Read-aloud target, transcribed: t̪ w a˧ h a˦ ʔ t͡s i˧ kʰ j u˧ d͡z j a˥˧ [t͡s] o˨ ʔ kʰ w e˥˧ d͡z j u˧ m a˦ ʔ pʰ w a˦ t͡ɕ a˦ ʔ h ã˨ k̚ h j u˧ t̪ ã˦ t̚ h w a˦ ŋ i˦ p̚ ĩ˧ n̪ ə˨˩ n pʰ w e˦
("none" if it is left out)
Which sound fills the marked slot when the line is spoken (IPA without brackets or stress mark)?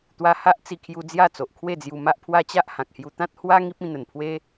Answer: t͡s